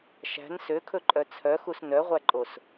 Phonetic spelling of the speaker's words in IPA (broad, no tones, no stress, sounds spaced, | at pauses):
ʃ æ̤ n s ø kʰ ɵ ǃʼ œ t͡sʰ œ x u s n œ ʁʷ æ ǃʼ o s